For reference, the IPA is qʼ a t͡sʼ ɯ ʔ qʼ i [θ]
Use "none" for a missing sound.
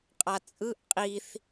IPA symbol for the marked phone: θ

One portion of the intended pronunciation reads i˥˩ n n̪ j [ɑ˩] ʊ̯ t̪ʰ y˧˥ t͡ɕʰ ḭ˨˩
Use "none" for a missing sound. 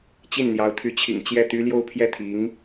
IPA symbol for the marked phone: ɑ˧˥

